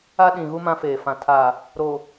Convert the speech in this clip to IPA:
a˦ɗĩ˨ɣu˦ mã˦feː˨fã˨ tʰa˨ | ɾo˨

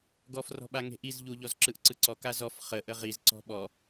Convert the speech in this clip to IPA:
ɡɔfrɔ̤ɓa ŋe̤ʔiz ʎuʎɔz ǁɯʔǀɯǀɔ kazɔf χə ʔəʁiz ǀɔ̤ɓɔ

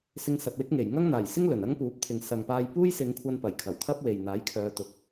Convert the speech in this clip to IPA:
sɪ˧ŋsɐ˨t̚wɪ˥k̚ŋe˨˩j ŋɐ˥ŋn̪aː˨˩jsɪ˥ŋ lɵ˨˩n ɐ˥ŋpuː˨˥p̚ t̪ʰɪ˨ŋsɐ˨ŋpaː˧j puː˥jsɪ˨˧ŋkʷʰɐ˧n pɐ˨˩jkʰɐ˨˩wt̪ʰɐ˥p̚we˨j n̪aː˨˥jkʰœː˨˧t̪ʊ˨˥k̚

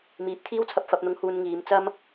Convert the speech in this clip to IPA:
miː˨˥p̚ t̪ʰiː˥wt͡sʰɐ˧p̚ fɐ˨˥p̚n̪ʊ˧ŋ huː˧nŋiː˨˧m t͡sɐ˥m

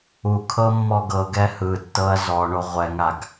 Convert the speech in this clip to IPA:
ukʰɤ mːɔɡɤɡɛ hɯtːɤɐ̯ zɔɳo ʁʷɛŋaɡ

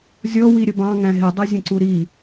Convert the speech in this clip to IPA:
zʲɔ wiɾʲəbɑ̃ ŋæ̃ɦɪ dˤʌzʲə̃ǀuɾi

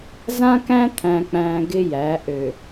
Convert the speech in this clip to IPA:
zã˦kæ̃˦ t̪ʰæ̃˨k͡pæ̃ː˨ ɡɪ˦jæ˨˦ ʔø˨

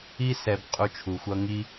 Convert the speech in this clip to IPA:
i˦sɛ˧b qʼu˧t͡ʃʰu˨xʷʌ˧ ŋi˧

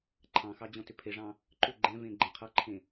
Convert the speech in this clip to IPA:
ǃʰɑ̃xɑ d͡ʑɔ̃tʏpʰeʐɑ̃ | ǃʏ ɡ͡ǃɛ̃vẽ ɡ͡ǃɛ̃qʰʌǃʰẽ

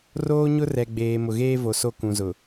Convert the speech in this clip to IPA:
roː˦ɲʊ˦rɛ˨ɡ͡beː˨ mʊ˨ɣeː˦vo˨ so˦kũ˨zʊ˨

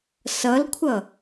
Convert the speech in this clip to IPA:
sʌlkʷʰʌ

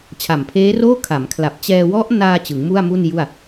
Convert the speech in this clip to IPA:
t͡ɕʰa˨˩mpʰeː˦˥roː˥˩ kʰa˩˦mkʰla˨˩p̚ t͡ɕɛː˧wɔ˦˥ʔnaː˧ t͡ɕɯ˩˦ŋmu˥˩a̯mu˥˩nju˥˩a̯

